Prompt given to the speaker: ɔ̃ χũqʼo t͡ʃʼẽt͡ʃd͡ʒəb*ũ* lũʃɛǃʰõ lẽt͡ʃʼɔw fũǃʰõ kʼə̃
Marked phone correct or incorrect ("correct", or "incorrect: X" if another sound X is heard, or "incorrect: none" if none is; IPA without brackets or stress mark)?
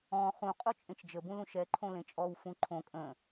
correct